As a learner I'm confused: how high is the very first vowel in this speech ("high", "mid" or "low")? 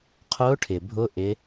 high